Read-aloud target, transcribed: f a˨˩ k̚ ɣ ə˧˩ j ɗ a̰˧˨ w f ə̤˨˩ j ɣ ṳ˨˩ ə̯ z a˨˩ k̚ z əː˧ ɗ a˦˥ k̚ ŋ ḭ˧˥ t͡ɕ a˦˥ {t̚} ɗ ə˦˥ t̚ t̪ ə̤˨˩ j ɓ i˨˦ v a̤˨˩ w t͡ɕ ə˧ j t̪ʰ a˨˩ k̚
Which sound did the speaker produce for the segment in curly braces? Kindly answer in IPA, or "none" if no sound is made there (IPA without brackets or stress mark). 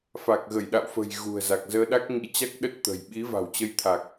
k̚